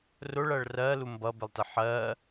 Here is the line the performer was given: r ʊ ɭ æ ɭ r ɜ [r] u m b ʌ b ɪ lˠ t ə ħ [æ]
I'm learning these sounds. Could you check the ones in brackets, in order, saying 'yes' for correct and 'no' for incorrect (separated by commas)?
no, no